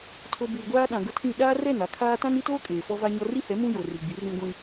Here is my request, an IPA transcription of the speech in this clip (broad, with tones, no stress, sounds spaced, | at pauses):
tʰ o˨ b uː˨ ɡʷ aː˦ ɗ ã˨ ɡ ʊ˦ tʰ ĩ˦˨ ɗ aː˦ r ɛ˦˨ n a˨ kʰ aː˦ t ã˦ n i˦ t oː˦ kʼ eː˨ f ɔ˦ v a˦ ɲ ɔ˦ r i˦ h ɛ˨˦ m ũ˦ j o˨ r i˨ ɡ͡b i˨˦ r ĩ˦ ɡʷ ĩ˦